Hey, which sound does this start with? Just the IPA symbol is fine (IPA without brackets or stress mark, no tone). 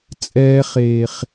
t͡sʼ